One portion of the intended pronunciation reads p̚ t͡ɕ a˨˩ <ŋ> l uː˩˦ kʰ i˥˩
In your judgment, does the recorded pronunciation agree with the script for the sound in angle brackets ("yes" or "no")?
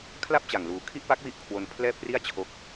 yes